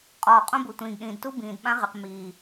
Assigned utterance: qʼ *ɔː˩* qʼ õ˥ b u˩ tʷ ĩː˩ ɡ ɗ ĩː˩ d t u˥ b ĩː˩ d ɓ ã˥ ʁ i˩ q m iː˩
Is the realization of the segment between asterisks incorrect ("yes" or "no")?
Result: no